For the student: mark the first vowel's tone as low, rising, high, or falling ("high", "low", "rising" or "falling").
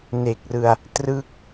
low